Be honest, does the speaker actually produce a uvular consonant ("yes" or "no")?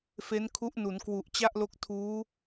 no